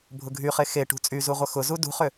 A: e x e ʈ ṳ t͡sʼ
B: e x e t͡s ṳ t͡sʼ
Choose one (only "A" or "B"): A